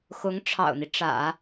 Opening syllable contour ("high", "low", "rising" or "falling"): rising